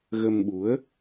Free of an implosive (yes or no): no